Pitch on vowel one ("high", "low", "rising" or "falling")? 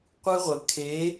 high